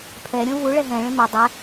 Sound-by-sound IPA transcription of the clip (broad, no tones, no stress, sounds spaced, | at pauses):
pʰ ɛ ɾʲ õ v u ɭ ɛ ɦ ɛ̃ ɭ ẽ m ʏ dˤ ɛ